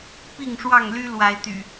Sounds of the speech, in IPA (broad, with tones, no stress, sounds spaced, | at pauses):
p i˥˨ ŋ ʂ w ɑ˥˨ ŋ l y˦ l w a˨˦ ɪ̯ t̪ y̰˨˩